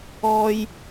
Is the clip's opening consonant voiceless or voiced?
voiced